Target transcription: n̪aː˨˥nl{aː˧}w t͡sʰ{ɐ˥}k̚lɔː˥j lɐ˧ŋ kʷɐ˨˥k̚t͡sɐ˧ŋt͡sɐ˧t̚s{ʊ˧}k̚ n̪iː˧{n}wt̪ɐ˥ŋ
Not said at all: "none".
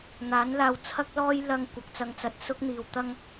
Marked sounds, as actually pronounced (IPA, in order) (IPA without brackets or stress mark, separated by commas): aː˧, ɐ˥, ʊ˥, none